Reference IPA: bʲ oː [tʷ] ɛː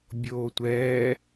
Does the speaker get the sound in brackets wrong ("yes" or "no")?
no